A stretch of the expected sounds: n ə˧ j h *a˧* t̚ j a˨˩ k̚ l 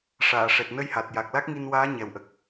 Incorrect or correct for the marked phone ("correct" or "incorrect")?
incorrect